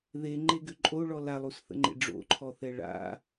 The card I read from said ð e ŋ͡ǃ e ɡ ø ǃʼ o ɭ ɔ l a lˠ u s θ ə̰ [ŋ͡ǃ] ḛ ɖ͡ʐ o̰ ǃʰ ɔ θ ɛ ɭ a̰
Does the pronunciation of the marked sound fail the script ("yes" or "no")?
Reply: no